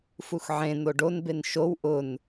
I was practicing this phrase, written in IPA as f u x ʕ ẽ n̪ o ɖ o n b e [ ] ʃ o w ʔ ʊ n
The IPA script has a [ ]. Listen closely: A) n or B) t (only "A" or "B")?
A